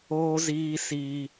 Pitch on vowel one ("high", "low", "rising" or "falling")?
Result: high